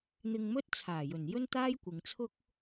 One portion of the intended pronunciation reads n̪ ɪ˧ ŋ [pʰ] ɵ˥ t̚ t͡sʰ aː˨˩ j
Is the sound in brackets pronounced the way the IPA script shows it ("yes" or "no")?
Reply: no